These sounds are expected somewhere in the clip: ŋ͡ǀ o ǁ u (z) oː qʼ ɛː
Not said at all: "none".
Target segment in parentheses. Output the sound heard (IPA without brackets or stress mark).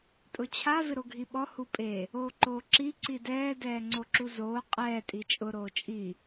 z